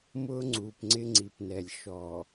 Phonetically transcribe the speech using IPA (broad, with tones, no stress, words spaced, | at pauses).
mʊː˦ŋ͡ǀuː˨pŋ͡ǀɪ˦ ŋ͡ǀi˨pnɛ˨lʲ ʃɔ˨